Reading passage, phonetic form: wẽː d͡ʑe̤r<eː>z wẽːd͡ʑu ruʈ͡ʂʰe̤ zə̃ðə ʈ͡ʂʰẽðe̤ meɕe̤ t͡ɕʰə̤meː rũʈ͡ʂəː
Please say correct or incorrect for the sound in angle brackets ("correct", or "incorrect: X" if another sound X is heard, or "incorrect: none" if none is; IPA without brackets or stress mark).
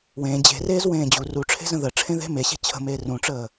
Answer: correct